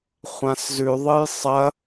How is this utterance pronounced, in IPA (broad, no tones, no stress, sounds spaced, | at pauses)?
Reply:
χʷ ã s z ʉ ðˤ ɨ j sˤ ɐ